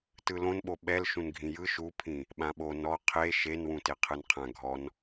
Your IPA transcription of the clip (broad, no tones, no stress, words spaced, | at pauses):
tɯlõnɓo ɓɛl ʃũnɡʱĩjɯ ʃupʰĩ | ɓãɓo nɔ qʰe ʃenwũte qʰɯnqʰã ɡʱɔn